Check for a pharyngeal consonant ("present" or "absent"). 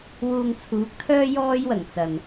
absent